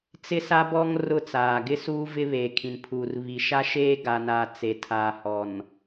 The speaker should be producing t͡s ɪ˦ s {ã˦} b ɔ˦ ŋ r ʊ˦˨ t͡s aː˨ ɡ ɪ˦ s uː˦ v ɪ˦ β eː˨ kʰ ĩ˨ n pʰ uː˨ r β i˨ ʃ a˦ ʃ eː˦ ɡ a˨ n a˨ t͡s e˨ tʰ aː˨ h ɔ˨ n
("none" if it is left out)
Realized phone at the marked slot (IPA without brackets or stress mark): a˦